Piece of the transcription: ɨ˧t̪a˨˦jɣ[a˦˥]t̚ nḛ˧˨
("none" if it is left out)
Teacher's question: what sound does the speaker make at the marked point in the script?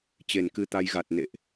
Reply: a˨˩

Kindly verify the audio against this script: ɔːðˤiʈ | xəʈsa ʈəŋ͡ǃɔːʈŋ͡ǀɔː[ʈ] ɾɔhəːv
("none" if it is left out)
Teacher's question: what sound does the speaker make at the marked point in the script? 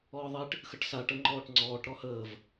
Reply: ʈ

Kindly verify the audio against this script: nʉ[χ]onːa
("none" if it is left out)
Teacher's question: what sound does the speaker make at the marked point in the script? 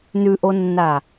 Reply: ʔ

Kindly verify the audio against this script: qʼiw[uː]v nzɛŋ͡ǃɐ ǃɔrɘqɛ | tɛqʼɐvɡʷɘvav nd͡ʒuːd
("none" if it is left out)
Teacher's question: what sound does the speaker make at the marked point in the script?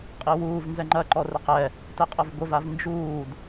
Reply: uː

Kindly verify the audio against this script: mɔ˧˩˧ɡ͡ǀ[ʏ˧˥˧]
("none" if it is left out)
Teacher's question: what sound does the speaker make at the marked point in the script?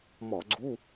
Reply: u˧˥˧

